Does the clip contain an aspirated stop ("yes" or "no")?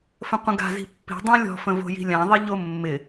no